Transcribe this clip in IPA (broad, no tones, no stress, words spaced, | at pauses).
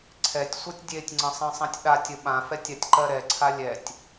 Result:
ǀʰɛtʲsʷɤtʲ dʲetʲŋ͡ǀə̃sˤɛ̃sˤɛ̃tʲ ɗatʲə ɓãfɛtʲatʲǃɜ ɾɛǀʰa lʲɛtʲ